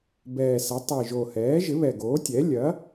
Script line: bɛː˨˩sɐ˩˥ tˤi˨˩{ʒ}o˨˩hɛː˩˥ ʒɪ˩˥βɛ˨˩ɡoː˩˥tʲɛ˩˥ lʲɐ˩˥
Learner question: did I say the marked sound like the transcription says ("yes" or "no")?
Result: yes